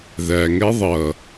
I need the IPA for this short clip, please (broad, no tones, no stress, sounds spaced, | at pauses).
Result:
ð æ ŋ ɛ ðˤ ʌ